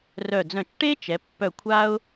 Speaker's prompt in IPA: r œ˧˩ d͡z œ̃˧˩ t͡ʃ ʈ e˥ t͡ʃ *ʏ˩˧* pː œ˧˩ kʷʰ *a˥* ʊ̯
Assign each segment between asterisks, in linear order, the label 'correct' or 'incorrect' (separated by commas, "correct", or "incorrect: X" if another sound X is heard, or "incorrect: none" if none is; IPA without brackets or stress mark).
incorrect: ɛ˩˧, correct